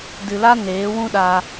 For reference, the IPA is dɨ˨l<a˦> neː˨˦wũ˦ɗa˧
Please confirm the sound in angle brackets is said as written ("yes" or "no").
yes